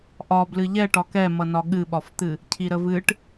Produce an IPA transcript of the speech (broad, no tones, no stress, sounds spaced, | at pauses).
ʔ ɒ b l ɨ ʎ ɛ ʈ ɒ k ɛ m ʌ n ɒ ɠ ɨ ɓ ɒ f t̪ ɨ | cʰ i ɾ ə v ɨ ʈ